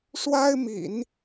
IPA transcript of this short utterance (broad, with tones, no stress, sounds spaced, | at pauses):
ʂ w a˥ ɪ̯ m ḭ˨˩˦ n